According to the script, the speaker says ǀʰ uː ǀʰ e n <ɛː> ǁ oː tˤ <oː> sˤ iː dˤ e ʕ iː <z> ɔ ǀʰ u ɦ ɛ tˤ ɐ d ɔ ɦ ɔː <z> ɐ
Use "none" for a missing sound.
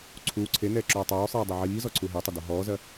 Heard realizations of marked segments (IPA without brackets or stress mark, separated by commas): ɛː, oː, z, z